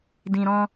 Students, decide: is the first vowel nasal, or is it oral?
nasal